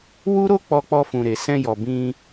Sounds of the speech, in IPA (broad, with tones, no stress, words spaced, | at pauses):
wu˦ɾo˦ k͡pɔ˧k͡pɔ˧fũ˨ɾe˨ sɛ̃˧jɔ˨ bĩ˧